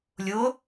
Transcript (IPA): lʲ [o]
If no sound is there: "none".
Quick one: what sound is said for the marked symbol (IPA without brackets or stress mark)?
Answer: o